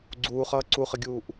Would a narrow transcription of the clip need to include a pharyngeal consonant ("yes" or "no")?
no